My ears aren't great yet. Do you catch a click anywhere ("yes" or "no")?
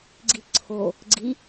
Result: yes